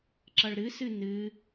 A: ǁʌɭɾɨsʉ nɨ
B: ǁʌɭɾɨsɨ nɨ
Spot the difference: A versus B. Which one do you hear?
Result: B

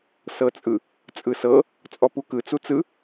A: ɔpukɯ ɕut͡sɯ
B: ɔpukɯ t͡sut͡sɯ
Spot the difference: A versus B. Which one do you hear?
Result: B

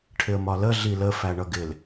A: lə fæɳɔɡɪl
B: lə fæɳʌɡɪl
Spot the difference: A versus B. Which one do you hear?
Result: B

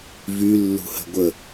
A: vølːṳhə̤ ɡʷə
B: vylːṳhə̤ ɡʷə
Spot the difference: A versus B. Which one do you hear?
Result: B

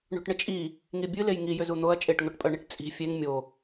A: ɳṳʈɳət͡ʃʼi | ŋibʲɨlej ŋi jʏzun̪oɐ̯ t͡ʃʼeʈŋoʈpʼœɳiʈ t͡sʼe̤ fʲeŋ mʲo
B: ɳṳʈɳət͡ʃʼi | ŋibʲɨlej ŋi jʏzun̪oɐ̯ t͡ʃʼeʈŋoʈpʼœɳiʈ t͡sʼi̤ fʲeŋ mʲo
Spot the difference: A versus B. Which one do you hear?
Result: B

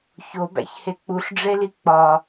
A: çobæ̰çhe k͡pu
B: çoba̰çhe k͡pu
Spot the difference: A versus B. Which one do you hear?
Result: A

